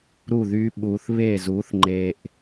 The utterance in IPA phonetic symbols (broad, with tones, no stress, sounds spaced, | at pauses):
ɾ u˥˨ ð y˦˥ ɓ uː˧ θ β eː˥˨ z uː˨˥ θ ŋ͡ǃ eː˧ ʔ